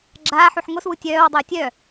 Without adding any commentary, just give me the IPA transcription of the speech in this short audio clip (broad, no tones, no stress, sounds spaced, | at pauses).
ɡ͡ǁ aː ħ u ħ ŋ o s w u tʲ œː w dˤ oː tʲ œ